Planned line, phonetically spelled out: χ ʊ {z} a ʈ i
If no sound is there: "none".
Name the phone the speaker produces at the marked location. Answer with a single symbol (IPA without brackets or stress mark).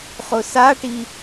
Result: s